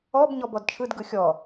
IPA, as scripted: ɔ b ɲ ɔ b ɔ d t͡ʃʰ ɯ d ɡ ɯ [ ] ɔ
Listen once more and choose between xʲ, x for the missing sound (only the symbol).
xʲ